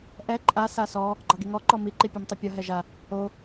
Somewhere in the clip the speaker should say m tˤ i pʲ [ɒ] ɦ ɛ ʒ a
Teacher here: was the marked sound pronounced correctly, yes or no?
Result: yes